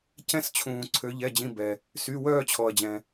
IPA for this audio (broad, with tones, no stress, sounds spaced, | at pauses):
c ɛ̃˦ s t͡ɕʰ ũː˩ ǀʰ ø˩˧ ʎ ɛ˩˧˩ d͡ʑ ĩ˩˧˩ b ɛ˩ | s y˩˧˩ w œː˦˨ t͡ɕʰ ɔ˩ ɐ̯ d͡ʑ ɛ̃˩